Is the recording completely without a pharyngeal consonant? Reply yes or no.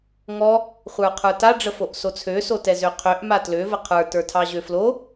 yes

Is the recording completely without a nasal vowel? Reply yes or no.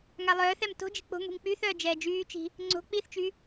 yes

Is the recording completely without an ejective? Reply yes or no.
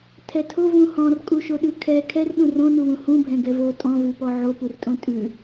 no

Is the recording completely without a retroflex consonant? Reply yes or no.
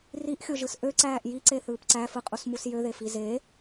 yes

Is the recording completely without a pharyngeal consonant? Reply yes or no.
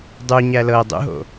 yes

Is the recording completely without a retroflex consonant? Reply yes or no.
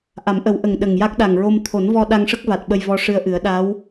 no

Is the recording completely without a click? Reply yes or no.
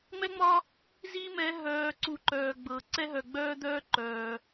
no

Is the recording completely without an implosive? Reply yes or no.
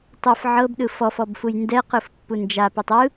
no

